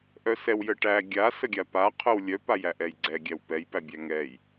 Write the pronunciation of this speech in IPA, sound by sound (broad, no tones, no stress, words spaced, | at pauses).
ʔœsɛw jəʈæ ɡʲa səɡʲapa qʰœwlʲœ pajæʔɛjɡ͡ǀɛ ɡʲæwpɛj pæbʲæŋɛj